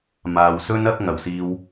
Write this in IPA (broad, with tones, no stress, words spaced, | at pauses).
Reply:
maː˨wsɵ˥n ɐ˨˥k̚ ŋɐ˨˩wsiː˧w